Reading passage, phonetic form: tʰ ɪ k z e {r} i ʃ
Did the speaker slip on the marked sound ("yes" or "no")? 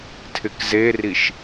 no